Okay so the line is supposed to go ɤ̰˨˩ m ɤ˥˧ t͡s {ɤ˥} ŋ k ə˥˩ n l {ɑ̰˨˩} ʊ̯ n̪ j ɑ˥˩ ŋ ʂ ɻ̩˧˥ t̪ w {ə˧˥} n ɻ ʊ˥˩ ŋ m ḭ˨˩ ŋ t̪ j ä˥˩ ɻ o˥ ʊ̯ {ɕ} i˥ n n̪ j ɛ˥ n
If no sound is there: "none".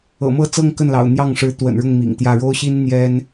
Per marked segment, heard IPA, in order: ɤ˥˧, ɑ̰˨˩, ə̰˨˩, ɕ

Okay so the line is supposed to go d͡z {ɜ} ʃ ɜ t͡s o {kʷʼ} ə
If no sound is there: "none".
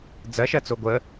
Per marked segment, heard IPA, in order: ɜ, ɡʷ

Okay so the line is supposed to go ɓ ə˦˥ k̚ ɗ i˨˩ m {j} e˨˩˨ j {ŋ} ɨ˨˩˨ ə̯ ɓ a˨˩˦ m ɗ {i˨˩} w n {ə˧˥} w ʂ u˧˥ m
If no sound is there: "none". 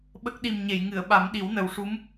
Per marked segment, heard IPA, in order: ɲ, ŋ, i˨˩˦, ə˨˩

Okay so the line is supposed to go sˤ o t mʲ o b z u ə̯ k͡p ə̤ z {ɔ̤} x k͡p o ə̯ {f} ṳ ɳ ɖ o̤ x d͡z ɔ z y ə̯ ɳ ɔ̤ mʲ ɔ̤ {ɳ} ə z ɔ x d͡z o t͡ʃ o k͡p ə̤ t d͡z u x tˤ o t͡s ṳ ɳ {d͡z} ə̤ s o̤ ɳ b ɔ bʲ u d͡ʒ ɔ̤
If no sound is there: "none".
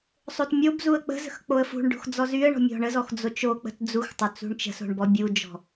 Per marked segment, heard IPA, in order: ə̤, f, ɳ, t͡ʃ

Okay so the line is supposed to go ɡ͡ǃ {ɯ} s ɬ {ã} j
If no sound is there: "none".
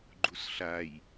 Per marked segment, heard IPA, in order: u, a

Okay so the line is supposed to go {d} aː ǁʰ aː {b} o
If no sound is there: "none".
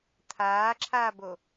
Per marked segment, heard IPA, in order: t̪ʰ, b

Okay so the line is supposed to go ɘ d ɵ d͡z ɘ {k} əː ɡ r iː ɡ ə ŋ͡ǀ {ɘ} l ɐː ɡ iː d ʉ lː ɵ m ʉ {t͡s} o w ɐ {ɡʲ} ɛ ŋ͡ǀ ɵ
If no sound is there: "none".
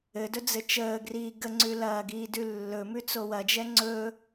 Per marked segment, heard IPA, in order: t͡ʃ, ʉ, t͡s, d͡ʒ

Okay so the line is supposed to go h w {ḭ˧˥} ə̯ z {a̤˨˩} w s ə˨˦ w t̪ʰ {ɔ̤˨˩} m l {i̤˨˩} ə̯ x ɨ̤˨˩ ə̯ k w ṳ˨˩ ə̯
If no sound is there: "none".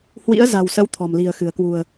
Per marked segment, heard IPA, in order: ḭ˧˥, a̤˨˩, ɔ̤˨˩, i̤˨˩

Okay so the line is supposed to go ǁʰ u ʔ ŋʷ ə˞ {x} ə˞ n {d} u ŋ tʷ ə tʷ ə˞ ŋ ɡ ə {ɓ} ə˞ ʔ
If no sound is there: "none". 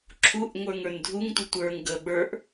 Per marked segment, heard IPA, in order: ŋ, dʱ, ɓ

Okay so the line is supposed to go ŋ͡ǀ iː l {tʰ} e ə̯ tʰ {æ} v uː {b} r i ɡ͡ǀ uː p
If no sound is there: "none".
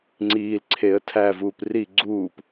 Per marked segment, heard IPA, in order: ǀʰ, æ, p

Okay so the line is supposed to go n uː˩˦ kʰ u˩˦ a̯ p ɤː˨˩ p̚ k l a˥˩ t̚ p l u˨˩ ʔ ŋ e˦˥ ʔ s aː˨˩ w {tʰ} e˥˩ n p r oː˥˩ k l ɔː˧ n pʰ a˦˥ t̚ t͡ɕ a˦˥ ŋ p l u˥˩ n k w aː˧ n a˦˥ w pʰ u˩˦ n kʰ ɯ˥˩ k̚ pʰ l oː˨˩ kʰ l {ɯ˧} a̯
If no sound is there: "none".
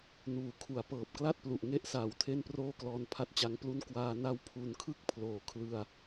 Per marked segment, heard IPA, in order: tʰ, ɯ˧

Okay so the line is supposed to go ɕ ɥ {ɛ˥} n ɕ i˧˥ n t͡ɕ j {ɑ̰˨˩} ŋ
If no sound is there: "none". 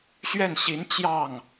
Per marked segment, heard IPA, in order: ɛ˥˩, ɑ˥˩

